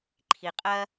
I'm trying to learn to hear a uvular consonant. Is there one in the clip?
yes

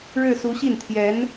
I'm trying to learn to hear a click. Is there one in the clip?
no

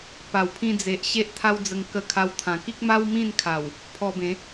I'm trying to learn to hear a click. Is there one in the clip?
no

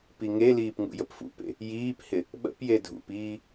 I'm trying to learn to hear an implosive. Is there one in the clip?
yes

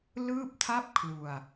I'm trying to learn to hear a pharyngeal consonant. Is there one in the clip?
no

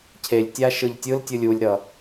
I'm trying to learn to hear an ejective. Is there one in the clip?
no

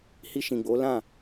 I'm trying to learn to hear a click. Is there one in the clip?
no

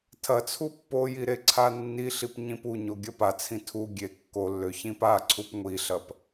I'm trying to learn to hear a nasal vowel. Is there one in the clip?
yes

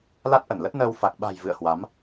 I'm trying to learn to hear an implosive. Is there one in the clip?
yes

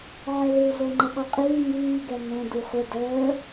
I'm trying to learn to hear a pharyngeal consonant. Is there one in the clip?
yes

